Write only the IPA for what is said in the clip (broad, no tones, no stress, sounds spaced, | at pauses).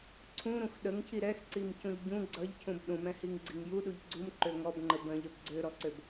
ǀʰ ũ ɾ ũ x ɗ ə ŋ cʰ i ɾ ɛ x ǀ i m c ũ ʎ ɟ ũ ɡ͡ǀ ʌ ʎ cʰ ũ b ɗ ũ m ɛ̃ h i ŋ ɡ͡ǀ i ŋ j u ɗ u ʎ ɡ͡ǀ u m ǃ ø ŋ ɔ b ŋ͡ǃ ə b ə̃ ʎ ə b ɡ͡ǀ ø ɾ ɔ ǀ ø b